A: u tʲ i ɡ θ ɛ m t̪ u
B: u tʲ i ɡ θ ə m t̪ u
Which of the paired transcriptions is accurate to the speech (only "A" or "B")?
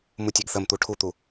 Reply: B